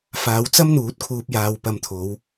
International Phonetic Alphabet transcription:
f aː˨˧ w t͡s ɐ˥ m n̪ uː˨˥ t̚ kʰ uː˧ p̚ j aː˧ w p ɐ˧ m t̪ʰ o˨˧ w

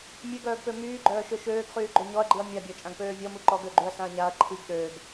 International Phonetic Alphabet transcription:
mʲ ø ɡ œː ɡ p ø m yː ɡ͡ǃ œː ʃ ø ʃ øː ɡ χ yː ɡ͡ǃ ø ɲ ɔ ɐ̯ ɡ͡ǃ i ɐ̯ mʲ a bʲ ɔ t͡ʃʼ ã ɡ p øː vʲ ɔ m u ǃ ɔ ɡ ø ɡ͡ǃ y ɐ̯ s ã ɐ̯ ɲ a ɐ̯ ǃʰ i ɡ ɗ ø ɡ

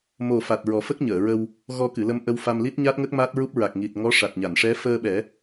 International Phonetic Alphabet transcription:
m o˨˩ f a˨˩ t̚ ɹ ɔ˨˩˦ f ə˦˥ k̚ ɲ əː˨˩˨ ɹ ə˧ w | ɣ ɔ˧ k ɨ˨˩˨ l ə˧ m ʔ ə˧ w f a˧ m l i˦˥ t̚ ɲ a˦˥ t̚ ŋ ə˦˥ k̚ m a˦˥ t̚ ɹ u˦˥ p̚ ɹ a˨˩ k̚ ŋ i˨˩ t̚ ŋ ɔ˧˥ ʂ a˨˩ t̚ ɲ a˨˩˨ n ʂ ɛ˧˥ f əː˧ ɓ ɛ˨˩˦

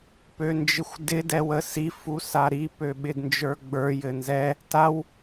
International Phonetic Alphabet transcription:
p ø n d͡ʒ ɪ xʷ d ɪ d ɛ w ə s i f u s a ɾ i p ø ɓ ɪ d n d͡ʒ ə˞ ɡ͡b ə˞ j ɘ n z ɛ | t a w

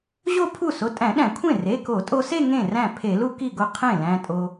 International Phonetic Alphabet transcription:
ʑ o˥˧ pʰ u˥˩ s o˩˧˩ tʼ æ̃˧˩˧ ɗ æ̃˧˩˧ kʷʰ ẽ˥˩ r e˩˧˩ k o˧˩˧ tʼ o˧ s e˥˧ ŋ ẽ˥˩ r æ̃˥˩ pʰ e˧˩˧ l u˥˧ k i˥˩ ɡ o˥˩ qʰ ẽ˥˩ l æ̃˧ tʼ o˧

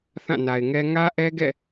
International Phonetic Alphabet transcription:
θ ã˦˨ n a˨ ɪ̯ ŋ ɛ˦ ŋ ä˦ ʔ ɛ˦ ɡ ɛ̰˦˨

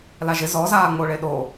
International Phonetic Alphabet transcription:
l a ʒ ɪ z ɔ z aː ŋ͡m o ɭ e ɗ o

